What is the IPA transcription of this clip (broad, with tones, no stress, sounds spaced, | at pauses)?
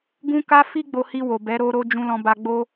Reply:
ɡ ũ˧ k a˧ f i˦ ɡ͡b o˧ h i˧ w o˨ b ɛ˨˦ ɾ o˧ ɾ o˧ d͡ʒ ũ˧ l ɔ̃˧ b a˧ ɡ͡b o˦